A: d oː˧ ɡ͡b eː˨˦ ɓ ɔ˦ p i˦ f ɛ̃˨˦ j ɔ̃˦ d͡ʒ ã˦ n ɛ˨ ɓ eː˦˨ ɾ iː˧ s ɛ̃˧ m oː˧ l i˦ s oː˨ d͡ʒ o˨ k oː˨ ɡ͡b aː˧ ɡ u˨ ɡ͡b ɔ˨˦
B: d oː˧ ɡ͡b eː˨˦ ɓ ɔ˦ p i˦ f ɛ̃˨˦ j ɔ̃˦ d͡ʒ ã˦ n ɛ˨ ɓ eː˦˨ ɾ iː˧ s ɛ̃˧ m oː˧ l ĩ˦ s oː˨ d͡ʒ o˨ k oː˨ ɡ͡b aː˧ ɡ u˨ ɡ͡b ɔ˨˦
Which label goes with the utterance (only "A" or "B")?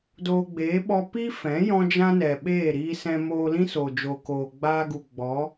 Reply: B